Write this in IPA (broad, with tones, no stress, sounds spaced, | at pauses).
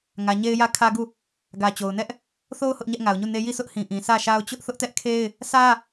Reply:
ŋ ä˨ ɲ e˦ ɪ̯ j ä˦ kʰ ä˦ ɡ u˦˨ | ɡ ä˨ t͡ɕ o˨ ʊ̯ n ɛ˦ ʔ | θ o˦ ʊ̯ h ʊ˦ ʔ ɲ ɛ˦ ʔ ŋ a˨ ʊ̯ ɲ u˦˨ n e˦ j i˦˨ sʰ ʊ˦ ʔ h ĩ˨ ʔ ĩ˨ sʰ ä˦˨ ʃ a˦ ʊ̯ t͡ɕ ʊ˦ ʔ θ ʊ˦ ʔ t ɛ˦ ʔ kʰ e˦ ɪ̯ | sʰ ä˦